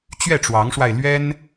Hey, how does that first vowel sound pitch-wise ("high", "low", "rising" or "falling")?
falling